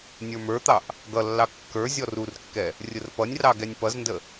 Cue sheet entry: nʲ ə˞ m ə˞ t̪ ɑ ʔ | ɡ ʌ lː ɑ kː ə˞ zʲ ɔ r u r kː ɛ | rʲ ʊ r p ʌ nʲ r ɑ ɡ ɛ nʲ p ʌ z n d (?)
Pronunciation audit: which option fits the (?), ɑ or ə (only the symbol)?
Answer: ə